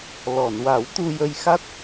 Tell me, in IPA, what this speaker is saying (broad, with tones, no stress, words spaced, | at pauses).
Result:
lɔ˨˩˨n wa˨˩˦wt̪u˧ jə˧jxa˦˥t̚